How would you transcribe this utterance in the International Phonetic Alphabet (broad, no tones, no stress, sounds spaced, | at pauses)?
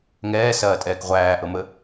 ŋ ɛː s ɐː tʼ ɛː k ʁʷ æː ʔ ɤ m ə